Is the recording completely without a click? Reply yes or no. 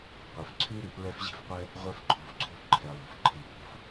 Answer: no